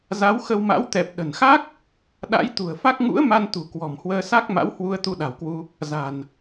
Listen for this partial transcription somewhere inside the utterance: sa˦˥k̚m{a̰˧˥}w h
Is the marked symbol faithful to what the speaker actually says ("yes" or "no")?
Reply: yes